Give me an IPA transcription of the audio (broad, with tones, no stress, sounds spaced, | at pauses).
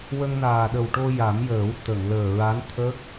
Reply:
w ə˧ ŋ n aː˨˩ ɗ ə˨˩ w ʈ o˧ j a˨˩˦ m j əː˨˩˦ w t̪ ə˨˩˨ ŋ l əː˨˩ ɹ a˧˥ n t̪ʰ ə˦˥ k̚